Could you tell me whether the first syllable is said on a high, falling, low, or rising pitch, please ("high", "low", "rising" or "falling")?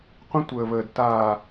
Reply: high